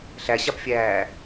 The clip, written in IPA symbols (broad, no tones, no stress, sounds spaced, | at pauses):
ɬ æ ɕ a p fʲ æː